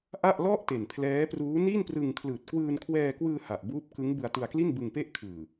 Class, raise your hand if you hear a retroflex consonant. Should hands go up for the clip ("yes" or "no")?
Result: no